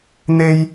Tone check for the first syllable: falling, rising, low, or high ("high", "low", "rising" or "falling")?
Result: high